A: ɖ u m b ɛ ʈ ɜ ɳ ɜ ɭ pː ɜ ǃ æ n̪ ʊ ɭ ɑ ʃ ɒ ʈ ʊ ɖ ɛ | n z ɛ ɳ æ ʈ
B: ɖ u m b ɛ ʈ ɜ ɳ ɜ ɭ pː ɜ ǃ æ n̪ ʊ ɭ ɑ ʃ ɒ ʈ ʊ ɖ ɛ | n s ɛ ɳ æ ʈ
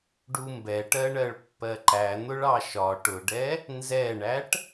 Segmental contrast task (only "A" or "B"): A